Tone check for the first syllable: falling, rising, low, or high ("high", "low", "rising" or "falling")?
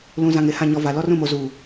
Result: low